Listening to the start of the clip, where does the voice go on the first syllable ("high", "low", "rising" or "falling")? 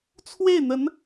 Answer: falling